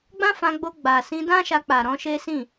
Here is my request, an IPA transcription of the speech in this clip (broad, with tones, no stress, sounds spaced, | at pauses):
ɡ͡b ã˦ f ã˧ ɡ͡b o˧ ɡ͡b a˨ s ĩ˧ d ã˦ ʃ a˧ k͡p a˨ ɾ ɔ̃˧ ʃ e˦ s ĩ˦˨